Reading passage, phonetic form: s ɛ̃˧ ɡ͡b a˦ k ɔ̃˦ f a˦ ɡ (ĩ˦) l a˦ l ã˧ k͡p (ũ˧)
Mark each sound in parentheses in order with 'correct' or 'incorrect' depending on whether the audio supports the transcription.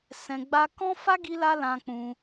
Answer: incorrect: i˦, correct

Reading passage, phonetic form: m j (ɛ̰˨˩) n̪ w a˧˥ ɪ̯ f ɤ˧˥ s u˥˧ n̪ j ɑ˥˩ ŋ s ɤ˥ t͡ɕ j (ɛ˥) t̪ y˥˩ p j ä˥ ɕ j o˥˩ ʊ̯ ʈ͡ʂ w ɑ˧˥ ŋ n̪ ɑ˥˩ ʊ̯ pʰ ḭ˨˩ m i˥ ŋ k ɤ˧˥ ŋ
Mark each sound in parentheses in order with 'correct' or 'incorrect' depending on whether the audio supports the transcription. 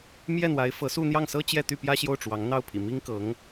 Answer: incorrect: ɛ˥˩, incorrect: ɛ˥˧

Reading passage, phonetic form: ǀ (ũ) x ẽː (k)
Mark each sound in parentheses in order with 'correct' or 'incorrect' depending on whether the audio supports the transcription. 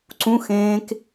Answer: correct, correct

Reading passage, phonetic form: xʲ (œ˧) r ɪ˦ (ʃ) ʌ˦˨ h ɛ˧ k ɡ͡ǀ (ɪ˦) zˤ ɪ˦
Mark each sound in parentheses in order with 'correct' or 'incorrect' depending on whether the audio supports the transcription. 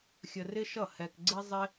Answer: incorrect: ə˧, correct, correct

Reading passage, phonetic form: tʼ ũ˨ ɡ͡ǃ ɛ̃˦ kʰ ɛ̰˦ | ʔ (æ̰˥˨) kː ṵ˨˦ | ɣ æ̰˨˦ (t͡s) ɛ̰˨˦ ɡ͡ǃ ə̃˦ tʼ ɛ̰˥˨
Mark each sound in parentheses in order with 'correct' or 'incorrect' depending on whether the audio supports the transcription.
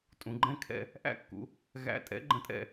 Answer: correct, incorrect: tʼ

